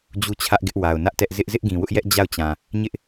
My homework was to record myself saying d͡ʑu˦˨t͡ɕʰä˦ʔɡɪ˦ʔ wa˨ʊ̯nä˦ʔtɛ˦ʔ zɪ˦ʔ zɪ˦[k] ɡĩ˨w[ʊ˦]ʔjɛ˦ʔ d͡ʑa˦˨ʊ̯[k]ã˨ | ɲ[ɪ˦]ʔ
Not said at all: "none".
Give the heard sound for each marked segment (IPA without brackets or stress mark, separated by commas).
ʔ, ʊ˦, t͡ɕ, ɪ˦